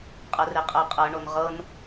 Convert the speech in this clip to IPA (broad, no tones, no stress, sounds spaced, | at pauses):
qʼ ɤ r e qʼ ɤ qʼ ɤ ɳ o n ʁ ɤ n